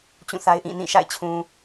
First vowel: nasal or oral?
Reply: nasal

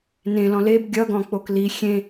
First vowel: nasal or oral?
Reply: nasal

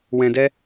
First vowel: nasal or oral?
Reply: nasal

